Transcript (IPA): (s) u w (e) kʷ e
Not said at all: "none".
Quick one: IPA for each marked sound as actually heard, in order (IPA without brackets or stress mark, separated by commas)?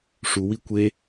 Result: ʂ, i